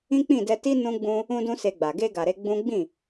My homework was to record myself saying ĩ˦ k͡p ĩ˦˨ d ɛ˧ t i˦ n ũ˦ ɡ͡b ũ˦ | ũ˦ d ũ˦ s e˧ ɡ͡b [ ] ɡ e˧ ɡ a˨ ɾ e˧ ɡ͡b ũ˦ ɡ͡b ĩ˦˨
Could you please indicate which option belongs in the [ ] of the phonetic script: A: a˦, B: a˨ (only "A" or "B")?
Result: B